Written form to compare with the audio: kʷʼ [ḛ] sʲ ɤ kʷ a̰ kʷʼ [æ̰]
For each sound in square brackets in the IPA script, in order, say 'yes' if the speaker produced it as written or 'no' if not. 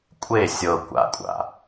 no, no

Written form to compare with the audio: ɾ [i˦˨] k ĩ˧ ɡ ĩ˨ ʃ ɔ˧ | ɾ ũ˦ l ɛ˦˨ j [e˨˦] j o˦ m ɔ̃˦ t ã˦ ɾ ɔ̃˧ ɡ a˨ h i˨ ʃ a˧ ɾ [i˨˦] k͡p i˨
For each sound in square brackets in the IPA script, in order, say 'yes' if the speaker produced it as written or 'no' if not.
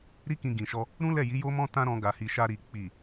no, no, no

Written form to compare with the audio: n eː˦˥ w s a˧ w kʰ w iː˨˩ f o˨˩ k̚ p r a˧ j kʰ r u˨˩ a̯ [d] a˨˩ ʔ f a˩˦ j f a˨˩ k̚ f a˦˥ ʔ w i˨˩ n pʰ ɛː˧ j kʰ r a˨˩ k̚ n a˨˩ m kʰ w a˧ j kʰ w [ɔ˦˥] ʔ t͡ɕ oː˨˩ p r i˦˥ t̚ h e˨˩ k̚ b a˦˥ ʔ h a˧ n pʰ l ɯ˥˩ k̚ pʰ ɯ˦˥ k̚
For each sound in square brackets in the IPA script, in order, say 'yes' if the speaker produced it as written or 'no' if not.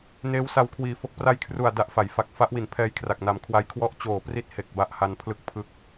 yes, no

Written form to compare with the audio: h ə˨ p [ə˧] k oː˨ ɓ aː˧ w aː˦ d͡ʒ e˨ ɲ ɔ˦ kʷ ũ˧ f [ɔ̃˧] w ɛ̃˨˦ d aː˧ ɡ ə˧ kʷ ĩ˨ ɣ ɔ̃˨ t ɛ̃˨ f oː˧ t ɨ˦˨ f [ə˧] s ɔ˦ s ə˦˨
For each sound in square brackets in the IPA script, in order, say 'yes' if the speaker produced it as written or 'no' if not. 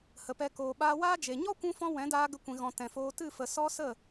no, yes, no

